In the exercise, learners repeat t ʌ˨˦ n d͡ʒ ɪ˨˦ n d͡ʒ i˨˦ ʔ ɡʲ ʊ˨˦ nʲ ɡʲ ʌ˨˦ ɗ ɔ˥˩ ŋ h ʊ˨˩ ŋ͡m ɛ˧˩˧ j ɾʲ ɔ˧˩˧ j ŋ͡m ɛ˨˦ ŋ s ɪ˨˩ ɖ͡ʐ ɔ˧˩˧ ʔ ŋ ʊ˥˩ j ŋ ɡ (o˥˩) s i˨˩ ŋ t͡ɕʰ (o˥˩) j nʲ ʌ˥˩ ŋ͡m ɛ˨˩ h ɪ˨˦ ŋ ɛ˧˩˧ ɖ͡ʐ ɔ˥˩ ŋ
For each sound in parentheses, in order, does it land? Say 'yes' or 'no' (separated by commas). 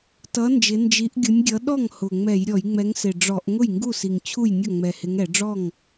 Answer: no, no